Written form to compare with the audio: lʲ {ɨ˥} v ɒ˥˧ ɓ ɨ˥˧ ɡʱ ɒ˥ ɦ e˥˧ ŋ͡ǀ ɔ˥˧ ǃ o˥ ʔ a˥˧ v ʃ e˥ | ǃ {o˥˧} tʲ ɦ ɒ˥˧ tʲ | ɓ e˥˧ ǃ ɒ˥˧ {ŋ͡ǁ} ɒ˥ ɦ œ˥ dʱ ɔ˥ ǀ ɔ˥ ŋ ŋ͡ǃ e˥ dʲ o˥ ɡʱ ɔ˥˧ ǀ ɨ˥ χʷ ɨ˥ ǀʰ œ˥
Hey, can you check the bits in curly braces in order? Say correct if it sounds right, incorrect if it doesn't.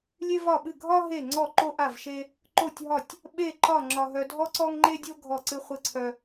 incorrect, correct, correct

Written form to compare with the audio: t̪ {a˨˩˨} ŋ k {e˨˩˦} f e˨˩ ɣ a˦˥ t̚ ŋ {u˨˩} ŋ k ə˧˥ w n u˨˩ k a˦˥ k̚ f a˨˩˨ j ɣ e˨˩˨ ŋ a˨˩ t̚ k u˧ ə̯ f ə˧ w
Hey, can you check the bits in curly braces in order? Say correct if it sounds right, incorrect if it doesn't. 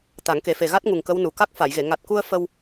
incorrect, correct, correct

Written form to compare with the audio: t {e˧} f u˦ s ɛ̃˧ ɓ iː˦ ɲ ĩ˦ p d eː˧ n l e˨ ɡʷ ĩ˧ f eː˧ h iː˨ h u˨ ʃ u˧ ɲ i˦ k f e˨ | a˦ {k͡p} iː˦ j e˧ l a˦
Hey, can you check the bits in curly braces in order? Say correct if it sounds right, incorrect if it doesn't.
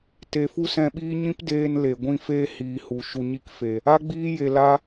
correct, incorrect

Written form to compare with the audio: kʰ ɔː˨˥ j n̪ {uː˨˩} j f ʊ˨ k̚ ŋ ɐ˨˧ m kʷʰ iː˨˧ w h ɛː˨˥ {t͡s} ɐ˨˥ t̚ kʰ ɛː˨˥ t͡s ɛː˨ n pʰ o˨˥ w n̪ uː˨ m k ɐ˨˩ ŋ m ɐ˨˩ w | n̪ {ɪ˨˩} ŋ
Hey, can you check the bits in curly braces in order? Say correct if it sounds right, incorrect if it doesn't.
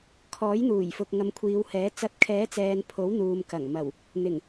correct, correct, correct

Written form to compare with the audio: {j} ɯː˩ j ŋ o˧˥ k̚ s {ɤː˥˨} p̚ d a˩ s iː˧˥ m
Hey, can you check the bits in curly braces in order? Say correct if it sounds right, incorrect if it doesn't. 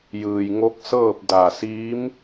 correct, correct

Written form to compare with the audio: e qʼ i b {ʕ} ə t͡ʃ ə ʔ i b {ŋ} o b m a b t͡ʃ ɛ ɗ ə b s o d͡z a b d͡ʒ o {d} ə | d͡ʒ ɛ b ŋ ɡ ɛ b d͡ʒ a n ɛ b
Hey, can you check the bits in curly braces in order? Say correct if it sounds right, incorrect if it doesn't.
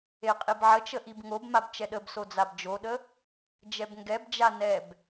correct, correct, incorrect

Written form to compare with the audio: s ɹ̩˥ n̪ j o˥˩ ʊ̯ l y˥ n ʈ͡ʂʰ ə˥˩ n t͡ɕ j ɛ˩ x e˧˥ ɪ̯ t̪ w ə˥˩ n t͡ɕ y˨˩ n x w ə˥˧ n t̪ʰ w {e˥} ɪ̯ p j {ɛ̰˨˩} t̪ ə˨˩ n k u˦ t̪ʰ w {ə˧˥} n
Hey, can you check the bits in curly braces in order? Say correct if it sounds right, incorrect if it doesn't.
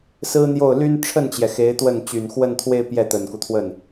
incorrect, incorrect, incorrect

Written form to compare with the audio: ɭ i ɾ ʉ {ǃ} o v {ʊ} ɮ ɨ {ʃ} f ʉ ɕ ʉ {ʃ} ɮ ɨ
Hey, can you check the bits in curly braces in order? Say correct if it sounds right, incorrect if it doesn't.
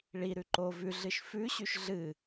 correct, incorrect, correct, correct

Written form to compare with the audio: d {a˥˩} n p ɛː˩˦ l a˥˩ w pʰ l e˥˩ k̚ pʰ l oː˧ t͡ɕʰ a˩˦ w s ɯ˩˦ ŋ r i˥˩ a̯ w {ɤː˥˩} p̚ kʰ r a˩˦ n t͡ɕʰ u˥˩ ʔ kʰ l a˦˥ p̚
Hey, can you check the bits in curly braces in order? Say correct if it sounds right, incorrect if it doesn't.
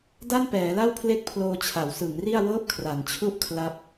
correct, correct

